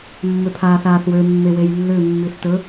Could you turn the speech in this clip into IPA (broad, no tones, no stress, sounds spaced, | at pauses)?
mː ø pʰ aː θ aː θ w ø mː e w e j lː ʏ mː i θ t ɵ